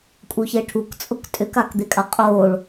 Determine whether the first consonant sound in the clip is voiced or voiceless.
voiceless